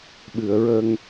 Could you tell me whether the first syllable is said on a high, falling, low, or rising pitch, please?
low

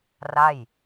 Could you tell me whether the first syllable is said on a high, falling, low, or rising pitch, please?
falling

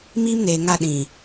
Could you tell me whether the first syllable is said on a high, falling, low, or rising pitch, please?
high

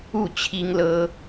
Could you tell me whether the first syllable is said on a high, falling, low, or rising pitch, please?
falling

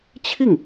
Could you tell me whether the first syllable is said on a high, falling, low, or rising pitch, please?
falling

